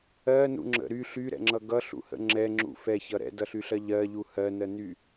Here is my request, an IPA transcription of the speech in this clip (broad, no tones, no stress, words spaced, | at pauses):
ɜnṵŋ͡ǁə̰ ɾy ɬyɾɛ̰ŋ͡ǁʌ ɡʌɬṵhə̰ ŋ͡ǁɛŋ͡ǁṵ fɛçʌ ɾɛ̰dʌɬyɬɜ ʎɜʎu hɜnɜny